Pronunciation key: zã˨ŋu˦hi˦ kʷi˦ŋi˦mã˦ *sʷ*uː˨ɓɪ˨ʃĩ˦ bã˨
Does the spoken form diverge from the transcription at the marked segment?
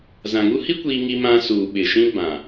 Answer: yes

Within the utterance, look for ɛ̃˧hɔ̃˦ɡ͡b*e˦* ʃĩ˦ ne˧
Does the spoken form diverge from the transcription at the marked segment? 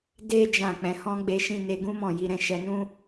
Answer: no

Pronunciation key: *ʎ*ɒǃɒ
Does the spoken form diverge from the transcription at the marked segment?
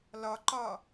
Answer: yes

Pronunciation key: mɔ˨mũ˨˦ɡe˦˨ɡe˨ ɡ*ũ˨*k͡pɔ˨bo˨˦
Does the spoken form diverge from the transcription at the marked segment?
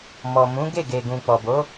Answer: no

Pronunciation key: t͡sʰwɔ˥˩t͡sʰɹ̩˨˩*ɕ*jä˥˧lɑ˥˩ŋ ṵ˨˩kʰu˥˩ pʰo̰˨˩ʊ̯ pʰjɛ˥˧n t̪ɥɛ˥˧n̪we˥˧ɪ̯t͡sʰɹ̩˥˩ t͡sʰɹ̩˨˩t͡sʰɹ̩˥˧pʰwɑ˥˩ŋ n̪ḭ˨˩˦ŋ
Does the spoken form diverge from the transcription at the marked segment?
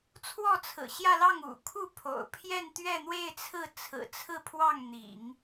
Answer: no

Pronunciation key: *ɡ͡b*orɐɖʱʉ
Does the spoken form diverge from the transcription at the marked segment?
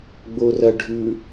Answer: no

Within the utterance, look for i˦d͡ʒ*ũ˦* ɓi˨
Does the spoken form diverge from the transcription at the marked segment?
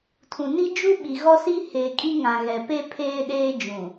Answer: yes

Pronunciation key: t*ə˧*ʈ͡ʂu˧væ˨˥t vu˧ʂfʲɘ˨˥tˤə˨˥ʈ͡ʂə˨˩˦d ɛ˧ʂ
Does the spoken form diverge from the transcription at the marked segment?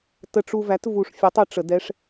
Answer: no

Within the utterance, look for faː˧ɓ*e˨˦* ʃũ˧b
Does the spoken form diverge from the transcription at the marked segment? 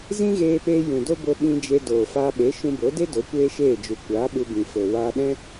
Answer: no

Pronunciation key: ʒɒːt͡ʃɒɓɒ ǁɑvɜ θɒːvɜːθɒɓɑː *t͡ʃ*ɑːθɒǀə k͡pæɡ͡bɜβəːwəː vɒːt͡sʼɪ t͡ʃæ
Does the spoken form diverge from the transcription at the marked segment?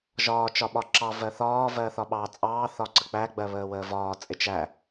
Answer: yes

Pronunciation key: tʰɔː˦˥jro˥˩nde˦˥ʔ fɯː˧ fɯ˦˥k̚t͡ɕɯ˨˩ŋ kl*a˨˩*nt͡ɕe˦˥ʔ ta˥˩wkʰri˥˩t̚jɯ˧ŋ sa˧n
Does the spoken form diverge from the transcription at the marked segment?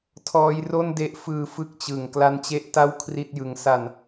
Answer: yes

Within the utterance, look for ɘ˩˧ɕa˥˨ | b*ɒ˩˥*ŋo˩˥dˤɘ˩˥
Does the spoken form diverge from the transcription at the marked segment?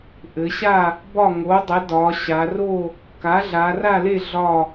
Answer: yes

